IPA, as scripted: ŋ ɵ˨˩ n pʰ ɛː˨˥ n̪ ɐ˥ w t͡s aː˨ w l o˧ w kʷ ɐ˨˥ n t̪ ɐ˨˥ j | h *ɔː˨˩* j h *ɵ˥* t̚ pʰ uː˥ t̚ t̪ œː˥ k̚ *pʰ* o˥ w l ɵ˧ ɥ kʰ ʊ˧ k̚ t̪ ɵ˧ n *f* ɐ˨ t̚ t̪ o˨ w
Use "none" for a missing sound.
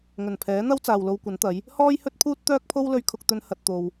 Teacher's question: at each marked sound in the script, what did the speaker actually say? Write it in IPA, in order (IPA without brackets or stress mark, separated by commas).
ɔː˥, ɵ˥, pʰ, h